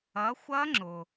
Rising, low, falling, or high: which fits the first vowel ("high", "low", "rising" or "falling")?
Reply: rising